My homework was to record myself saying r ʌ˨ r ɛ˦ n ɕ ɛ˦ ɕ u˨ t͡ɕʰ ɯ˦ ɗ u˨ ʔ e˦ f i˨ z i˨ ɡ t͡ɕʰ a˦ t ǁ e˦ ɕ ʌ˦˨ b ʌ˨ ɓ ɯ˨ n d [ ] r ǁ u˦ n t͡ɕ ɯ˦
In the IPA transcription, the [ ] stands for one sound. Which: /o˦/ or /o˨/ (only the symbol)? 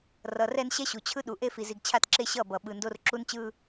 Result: o˦